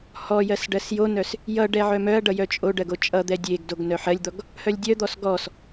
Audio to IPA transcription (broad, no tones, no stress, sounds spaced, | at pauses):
h ɔ j ɜ s ɖ ɜ s j o n œ s | j ʌ ɖ ɛ ʕ œ m œ ɐ̯ ɖ ʌ j œ t͡ʃʼ o ɖ ɜ ɡ o t͡ʃʼ ʌ d̪ ɛ dʲ e ɡ d o ɡ n œ ħ ɜ lʲ d̪ ɔ ɡ | h œ lʲ dʲ œ d̪ ɔ s ɡ ɔ s